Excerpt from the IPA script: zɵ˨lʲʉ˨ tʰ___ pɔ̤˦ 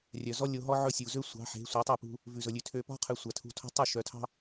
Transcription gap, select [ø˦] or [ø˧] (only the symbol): ø˧